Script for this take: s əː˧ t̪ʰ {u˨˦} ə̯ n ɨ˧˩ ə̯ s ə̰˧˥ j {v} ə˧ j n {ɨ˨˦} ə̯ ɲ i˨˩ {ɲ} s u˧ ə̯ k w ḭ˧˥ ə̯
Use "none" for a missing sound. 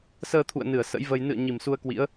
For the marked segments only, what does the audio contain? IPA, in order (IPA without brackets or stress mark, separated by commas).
ṵ˧˨, v, ɨ̰˧˨, m